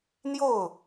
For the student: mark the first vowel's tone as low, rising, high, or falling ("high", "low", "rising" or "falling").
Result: falling